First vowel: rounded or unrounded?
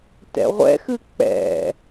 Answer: unrounded